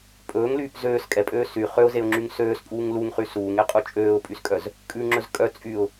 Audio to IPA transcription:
pʼɵːŋlyːp zøːs kʼɛpʼøː sy χøʊ̯zeʊ̯ŋ͡ǁyŋ søːspʼuːŋ luŋχy suːŋeqʼu t͡ʃʼøːʊ̯pʼyskʼœz | kʼʉŋ͡ǁɵz kʼœ t͡sʼyʊ̯

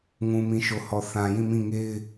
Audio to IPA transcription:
ŋũ˨mĩ˨ ʃo˨hɔ˨θã˨ jĩ˦˨mĩ˦˨ ŋe˦ɪ̯

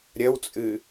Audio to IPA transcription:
ɾʲɐwt͡sʼɨ

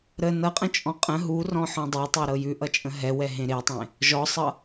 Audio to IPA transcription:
ɾə nʌqʼə̃t͡ʃʼɔ̃ qʼə̃ ɦurɔ̃ħɔ̃ dˤɛtˤɛɾɤ jʉʔʌt͡ʃʼə̃ ɦɛwɛɦẽ ɾetˤẽ | ʒɔsˤʌ

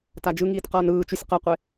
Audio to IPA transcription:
tad͡ʒɯŋiːt qʌːnɯːt͡ʃusʲ qʌqʷe

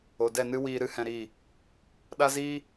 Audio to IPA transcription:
o˨dɛ˦˨nɨ˦ wiː˧ɾɨ˦hɛ̃˧ɾiː˦˨ | ɗa˦ziː˦

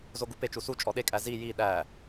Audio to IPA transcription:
zoɡupe t͡ʃusu t͡ʃʼɔɗe kʼæzi ji ɗæ

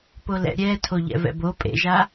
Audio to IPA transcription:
polɛ̰ ɾʲɛ tʰoʎɛ̰vɛ̰bo pʼḛʒa

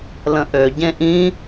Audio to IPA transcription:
lə̃ʔø ɟẽʔĩ

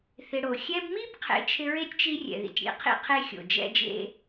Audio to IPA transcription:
θɪ˨ɽo˩ xʲɛ˦bmi˥bqʰḛ˨ t͡ʃʰɪ˦ɹe˥tʲt͡ʃi˦ rʲɛ̰˩ðḭ˩tʲɽḭ˥qʰḭ˦ qʰe˥xʲo̰˩ d͡ʒɛ̰˦d͡ʒḛ˦

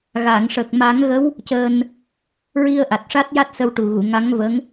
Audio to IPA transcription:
ɣa˨˩˨ŋʂə˨˩k̚ ma˨˩˦ŋɣə˧˥w | cəː˧n | ɹi˧ə̯ʔa˨˩t̚ ʂa˦˥t̚ja˦˥t̚sə˧wʈu˨˩ ɣu˨˩˨ŋa˧˥ŋvə˧˥ŋ

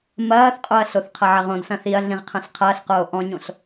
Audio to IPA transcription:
mɐːθqʼoɐ̯ɬoθ qʰɐʕɐʁõd sɐ̃θiɐ̯ɮĩʁ qʰɐ̃ɬqʰɐːɬ qoːʔɔ̃ɲõɬ

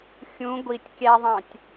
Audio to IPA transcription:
xʲũ ɡʷitʲ kʲæðˤɑ̃tʲ

